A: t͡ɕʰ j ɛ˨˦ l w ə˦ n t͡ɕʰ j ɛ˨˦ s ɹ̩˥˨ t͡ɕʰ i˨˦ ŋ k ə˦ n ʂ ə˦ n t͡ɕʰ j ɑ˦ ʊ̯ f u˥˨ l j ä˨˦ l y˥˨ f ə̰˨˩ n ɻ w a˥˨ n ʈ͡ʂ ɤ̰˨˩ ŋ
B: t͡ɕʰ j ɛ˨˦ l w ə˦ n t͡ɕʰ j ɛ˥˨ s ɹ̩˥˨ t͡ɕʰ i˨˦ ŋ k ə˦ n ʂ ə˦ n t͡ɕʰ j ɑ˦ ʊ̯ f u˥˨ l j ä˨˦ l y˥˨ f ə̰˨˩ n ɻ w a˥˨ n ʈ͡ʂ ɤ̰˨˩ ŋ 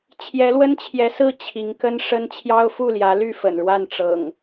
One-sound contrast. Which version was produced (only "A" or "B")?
A